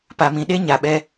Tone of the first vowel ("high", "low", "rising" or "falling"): low